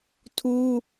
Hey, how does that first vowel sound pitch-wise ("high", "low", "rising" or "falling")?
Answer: high